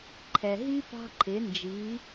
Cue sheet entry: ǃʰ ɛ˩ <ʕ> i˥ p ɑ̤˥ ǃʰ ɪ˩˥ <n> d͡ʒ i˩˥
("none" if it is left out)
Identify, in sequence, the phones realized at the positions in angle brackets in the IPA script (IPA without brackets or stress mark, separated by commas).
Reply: ɦ, n